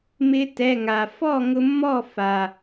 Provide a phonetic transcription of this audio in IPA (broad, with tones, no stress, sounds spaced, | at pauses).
m ɪ˧ t ɛ˩˧˩ ŋ a˩ f ɔ˥˩ ŋ ʊ˧ mː ɔ˥˩ f a˩